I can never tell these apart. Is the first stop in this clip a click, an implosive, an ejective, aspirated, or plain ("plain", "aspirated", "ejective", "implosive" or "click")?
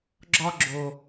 click